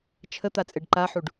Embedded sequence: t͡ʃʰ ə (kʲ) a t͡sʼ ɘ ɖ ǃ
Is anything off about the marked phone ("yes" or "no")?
yes